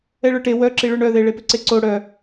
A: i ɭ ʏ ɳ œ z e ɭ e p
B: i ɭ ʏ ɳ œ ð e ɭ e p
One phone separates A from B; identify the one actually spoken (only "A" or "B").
B